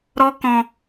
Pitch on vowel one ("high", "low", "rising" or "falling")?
high